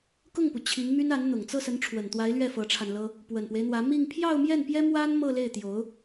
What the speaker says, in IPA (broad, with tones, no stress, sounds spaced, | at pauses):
k ʊ˥˩ ŋ p u˩ t͡ɕʰ i˧˥ ŋ m y˥ n a˧˥ n n̪ ʊ˨˩ ŋ t͡s ɤ˥˩ s ə˧˥ n ʈ͡ʂʰ w ə˨˩ n t̪ w a˧˥ ɪ̯ l ɥ ɛ˥˩ f ɤ˧˥ ʈ͡ʂʰ a˧ n l ɤ˥ | p w ə˨˩ n p w e˦ ɪ̯ n̪ w ä˧˥ m i˥˧ ŋ pʰ j ɑ˥˧ ʊ̯ m j ɛ˥˩ n p j ɛ˥ m w a˥ n m ɤ˥˧ l e˥˩ ɪ̯ t̪ j o˧˥ ʊ̯